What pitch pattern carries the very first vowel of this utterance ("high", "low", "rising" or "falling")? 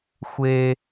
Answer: high